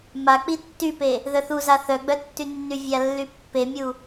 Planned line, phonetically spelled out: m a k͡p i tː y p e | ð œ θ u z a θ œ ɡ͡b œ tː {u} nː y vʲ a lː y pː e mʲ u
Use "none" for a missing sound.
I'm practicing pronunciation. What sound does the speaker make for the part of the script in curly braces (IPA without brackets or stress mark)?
y